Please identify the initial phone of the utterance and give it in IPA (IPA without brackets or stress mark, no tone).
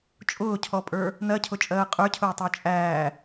t͡ʃʼ